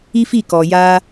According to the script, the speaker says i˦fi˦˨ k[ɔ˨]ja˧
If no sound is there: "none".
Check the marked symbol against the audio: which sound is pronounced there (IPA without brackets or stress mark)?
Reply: ɔ˨